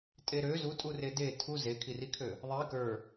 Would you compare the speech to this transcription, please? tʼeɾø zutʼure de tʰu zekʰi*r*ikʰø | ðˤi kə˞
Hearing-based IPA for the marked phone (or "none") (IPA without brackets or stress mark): r